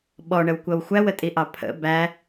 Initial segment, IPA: ɓ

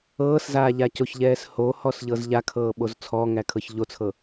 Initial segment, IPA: ɤː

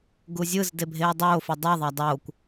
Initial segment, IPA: ɡ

